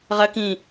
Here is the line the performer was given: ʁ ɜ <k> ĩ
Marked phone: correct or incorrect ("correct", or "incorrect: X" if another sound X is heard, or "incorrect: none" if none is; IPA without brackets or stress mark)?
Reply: correct